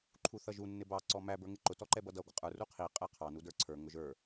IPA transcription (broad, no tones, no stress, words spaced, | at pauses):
ǃʰuθʌʒu nːɪbɑ ǀɔmæ bə˞ŋɪǃʊ tɔǃɛbʌdʌ ɡʷəqʼə˞ ruqʰi qʼæqʰɑ nudə˞ǀʰə˞ ŋʊʒə˞